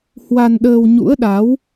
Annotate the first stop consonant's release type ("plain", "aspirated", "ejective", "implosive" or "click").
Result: implosive